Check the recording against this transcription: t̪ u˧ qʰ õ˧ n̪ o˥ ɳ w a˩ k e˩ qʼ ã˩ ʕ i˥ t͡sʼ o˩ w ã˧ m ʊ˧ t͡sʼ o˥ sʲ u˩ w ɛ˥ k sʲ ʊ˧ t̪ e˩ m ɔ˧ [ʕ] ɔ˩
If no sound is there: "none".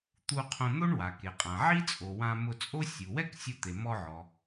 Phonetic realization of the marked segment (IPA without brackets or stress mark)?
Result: ʕ